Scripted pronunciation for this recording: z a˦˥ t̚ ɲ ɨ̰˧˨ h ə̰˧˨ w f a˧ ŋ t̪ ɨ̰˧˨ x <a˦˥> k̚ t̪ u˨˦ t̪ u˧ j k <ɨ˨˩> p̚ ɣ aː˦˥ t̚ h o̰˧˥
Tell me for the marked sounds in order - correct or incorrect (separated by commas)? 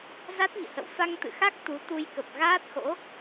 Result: correct, incorrect